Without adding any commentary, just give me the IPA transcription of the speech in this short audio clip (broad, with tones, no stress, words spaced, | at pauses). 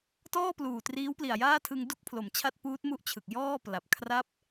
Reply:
tɔː˥˩pluː˨˩ triː˦˥wpli˨˩a̯jaː˥˩tʰɯ˧ŋ du˥˩k̚pʰlo˩˦mt͡ɕʰa˦˥t̚ puː˦˥t̚ mu˦˥ʔt͡ɕʰɯ˨˩k̚ jɔː˥˩ pla˨˩p̚ kʰra˥˩p̚